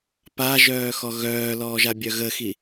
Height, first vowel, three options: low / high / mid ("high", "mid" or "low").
low